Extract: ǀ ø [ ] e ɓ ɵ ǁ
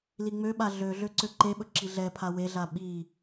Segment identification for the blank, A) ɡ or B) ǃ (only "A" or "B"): B